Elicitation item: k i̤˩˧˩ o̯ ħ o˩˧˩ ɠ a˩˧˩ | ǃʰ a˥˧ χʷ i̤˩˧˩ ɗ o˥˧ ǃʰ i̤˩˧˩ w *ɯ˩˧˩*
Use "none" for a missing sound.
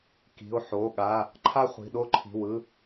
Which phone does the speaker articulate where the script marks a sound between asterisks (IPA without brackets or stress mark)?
ɯ˩˧˩